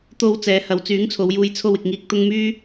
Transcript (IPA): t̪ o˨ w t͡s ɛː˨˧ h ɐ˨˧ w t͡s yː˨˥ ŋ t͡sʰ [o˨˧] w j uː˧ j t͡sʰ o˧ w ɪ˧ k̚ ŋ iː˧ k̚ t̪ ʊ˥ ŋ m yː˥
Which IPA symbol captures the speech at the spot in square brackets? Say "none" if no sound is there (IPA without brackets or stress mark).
o˨˧